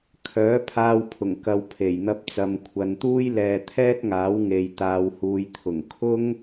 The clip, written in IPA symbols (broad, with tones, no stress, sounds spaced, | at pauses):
kʰ œː˨˥ pʰ aː˧ w pʰ ʊ˨˩ ŋ k ɐ˨ w pʰ e˨˩ j n̪ ɐ˧ p̚ t͡s ɐ˨ m kʷʰ ɐ˨ n t̪ uː˥ j l ɛː˧ t̪ʰ ɛː˥ t̚ ŋ aː˨˥ w ŋ e˨ j t̪ aː˨ w h uː˨ j t̪ʰ ʊ˨˩ ŋ kʰ ʊ˥ ŋ